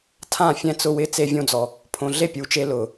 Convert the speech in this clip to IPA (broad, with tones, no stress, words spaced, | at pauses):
tʰã˦˨ fʲɛ̃˧t͡sʊ˧wɪ˧ t͡se˧vʲõ˧d͡zɔ˨ | pʰõ˧ ɮe˦˨pʲu˨˦t͡ʃe˧ lʊ˨